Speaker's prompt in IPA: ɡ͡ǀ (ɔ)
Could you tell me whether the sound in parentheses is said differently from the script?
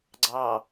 yes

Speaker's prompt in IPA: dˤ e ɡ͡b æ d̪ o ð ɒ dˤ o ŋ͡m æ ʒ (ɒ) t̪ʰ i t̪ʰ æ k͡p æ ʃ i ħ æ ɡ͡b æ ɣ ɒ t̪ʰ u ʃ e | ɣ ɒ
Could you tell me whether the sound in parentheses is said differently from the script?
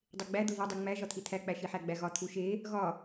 no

